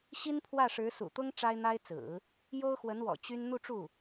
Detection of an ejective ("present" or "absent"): absent